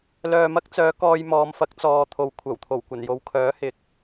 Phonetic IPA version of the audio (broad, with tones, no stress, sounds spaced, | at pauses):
l œː˨ m ɐ˧ k̚ t͡s œː˨˧ k ɔː˧ j m ɔː˨˧ m f ɐ˨˥ k̚ t͡s ɔː˨ t̪ʰ o˨ w kʷʰ ɐ˨˩ w t̪ʰ o˨˩ w kʷ ɐ˨˩ n j o˨˧ w kʰ œː˨˥ h ɪ˨˥ k̚